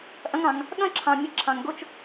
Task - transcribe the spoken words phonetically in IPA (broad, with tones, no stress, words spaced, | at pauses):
ʔɐ̃˦ŋɑ̃˨ŋ | ɠɐ̃˥ǁʰɑ̃˨ mʲə˦ǁʰɑ̃˨ŋ ɡo˥t͡ʃ